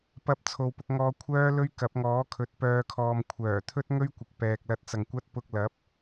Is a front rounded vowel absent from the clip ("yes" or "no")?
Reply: no